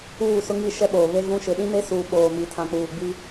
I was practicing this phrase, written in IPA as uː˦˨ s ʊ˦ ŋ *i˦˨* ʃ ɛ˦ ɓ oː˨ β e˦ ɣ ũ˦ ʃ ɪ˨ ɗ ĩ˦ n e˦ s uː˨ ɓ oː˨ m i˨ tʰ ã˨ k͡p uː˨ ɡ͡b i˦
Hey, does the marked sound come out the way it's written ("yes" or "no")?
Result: yes